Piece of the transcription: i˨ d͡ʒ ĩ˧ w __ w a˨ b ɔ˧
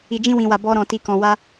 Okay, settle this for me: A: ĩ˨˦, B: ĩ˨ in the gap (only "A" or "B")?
B